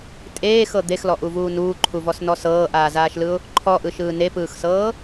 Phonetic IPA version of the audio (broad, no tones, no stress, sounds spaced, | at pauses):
tʼ eː x ɤ d̪ e x l ɔ ʔ u v uː n uː ǃʰ u v ɔ s n ɔ s ɤː ʔ aː z aː ʃ l ɯ ʊ̯ | ǃʰ ɔ ʔ ɯ ʃ ɯː n e p ɯː x s ɤː